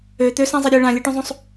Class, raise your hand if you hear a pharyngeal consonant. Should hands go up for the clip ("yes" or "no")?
no